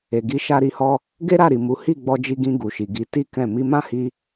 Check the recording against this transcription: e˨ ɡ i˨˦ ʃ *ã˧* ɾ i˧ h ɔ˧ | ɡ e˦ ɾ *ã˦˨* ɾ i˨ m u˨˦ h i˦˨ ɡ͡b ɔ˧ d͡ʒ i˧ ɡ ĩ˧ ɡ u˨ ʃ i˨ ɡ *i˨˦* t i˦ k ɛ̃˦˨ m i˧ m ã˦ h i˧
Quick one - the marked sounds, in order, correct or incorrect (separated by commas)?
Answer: incorrect, incorrect, correct